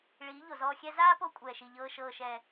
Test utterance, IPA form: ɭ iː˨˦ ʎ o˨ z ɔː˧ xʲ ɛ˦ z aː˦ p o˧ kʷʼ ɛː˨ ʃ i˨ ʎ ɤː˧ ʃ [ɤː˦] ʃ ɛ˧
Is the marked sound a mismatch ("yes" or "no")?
yes